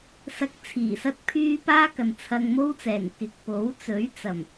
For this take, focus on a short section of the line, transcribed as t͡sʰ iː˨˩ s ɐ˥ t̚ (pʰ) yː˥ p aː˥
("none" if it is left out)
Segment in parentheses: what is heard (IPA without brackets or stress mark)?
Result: pʰ